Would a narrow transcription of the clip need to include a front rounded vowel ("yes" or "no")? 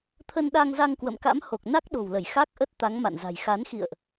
no